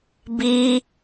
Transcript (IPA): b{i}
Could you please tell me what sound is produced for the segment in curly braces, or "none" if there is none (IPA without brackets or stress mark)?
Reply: i